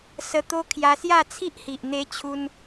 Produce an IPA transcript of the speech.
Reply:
sə˧ t̪o˧ kʰja˧sja˥˧t͡sʰi˦ʔhi˨ʔ n̪e˧t͡ɕʰu˧n

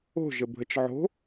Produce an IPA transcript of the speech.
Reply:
o̤ʒəbʱət͡ʃ ʕo̤

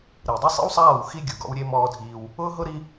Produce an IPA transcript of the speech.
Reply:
ɾi˨dˤɪ˦sˤḛ˦wsˤaː˦˨w xi˦ɡʲʊ˨ ɡɔ̰˦wɾʲe˦ mɔː˦dʱiː˦w | ʊː˦ɦʊ˦ɾi˦

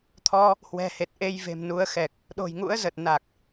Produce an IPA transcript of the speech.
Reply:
t̪ʰɔ˧ | hwɛ̤˨˩he˨˩t̚ʔe˧j ve̤˨˩mnu˨˦ə̯xɛ˨˩k̚ | ɗo̤˨˩jŋṵ˧˥ə̯zə˨˩t̚na˨˩k̚

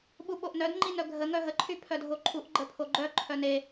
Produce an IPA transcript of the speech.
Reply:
ɓuɓoʔnœd ŋ͡ǃinœɡʱə ŋœɦə ǃʰypʰœdʱoǃʰuʔ ɡ͡ǃəpʰoɡ͡ǃœ ǃʰœne

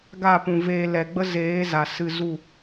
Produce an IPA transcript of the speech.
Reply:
ɡa˦˨pũ˨veː˧ lɛ˨ɡ͡bə˦ zeː˨˦za˨ sɨ˧zu˦˨

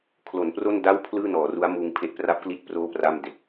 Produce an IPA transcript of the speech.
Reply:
kʰlo˩˦npro˥˩nda˥˩w pʰlɯː˥˩nɔː˩˦ru˦˥a̯ muː˧ŋpʰe˦˥ʔ pra˦˥p̚kli˦˥t̚ proː˥˩pra˥˩m de˨˩k̚

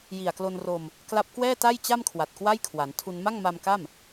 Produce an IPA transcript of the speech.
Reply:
ji˨˩a̯klo˧nro˧m | kla˦˥p̚kwɛː˥˩ta˥˩jt͡ɕa˥˩m kʰwa˨˩t̚kwa˥˩j kʰwa˩˦ntʰu˧n ma˥˩ŋma˧mka˥˩m

